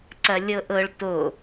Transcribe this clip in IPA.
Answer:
ǀ ɐ lʲ ɤ ʔ ɤ ɭ t o

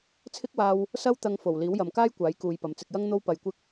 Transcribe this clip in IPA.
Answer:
t͡sʰ ɪ˥ k̚ w aː˧ w | s ɐ˥ w t̪ ɐ˧ ŋ f o˨˩ w l iː˨˥ w j ɐ˨ m k aː˥ j kʷ aː˨˥ j k uː˨˧ j p ɐ˨ m t͡s ɪ˨ k̚ j ɐ˥ ŋ n̪ o˧ w p ɐ˧ j kʷ ɪ˥ k̚

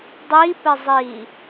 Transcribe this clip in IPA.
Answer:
dˤ i p ɘ zˤ i

